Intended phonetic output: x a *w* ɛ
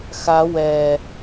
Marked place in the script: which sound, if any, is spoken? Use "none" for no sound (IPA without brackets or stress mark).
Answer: w